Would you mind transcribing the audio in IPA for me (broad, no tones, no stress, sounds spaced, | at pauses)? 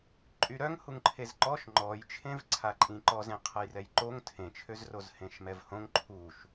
ǃʼ y ɾ œ ŋ h u ŋ ǃʰ e z ǃ ɔ ʃ ŋ͡ǃ ɔ j t͡ʃʰ ẽ v ǀʰ a ǃʼ ĩ ǃ ɔ z ẽ qʰ ə j r ɛ j ǃ o ŋ tʰ ẽ t͡ʃʰ ø z r o z h ẽ ʃ m ɛ v h õ ŋ ǃʰ u ʃ